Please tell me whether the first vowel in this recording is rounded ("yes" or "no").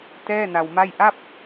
no